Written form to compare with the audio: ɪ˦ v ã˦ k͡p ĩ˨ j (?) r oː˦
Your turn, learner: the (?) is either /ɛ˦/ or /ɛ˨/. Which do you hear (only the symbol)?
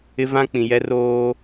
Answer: ɛ˦